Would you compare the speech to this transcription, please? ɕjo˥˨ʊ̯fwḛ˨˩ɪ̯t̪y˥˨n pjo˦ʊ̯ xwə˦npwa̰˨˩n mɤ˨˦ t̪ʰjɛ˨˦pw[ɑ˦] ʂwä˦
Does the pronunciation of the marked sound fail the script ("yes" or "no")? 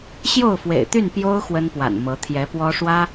yes